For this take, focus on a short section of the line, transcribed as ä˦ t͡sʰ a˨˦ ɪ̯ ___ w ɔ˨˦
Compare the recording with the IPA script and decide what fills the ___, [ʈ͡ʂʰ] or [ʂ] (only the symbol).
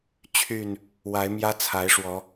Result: ʂ